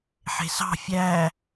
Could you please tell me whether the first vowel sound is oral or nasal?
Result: oral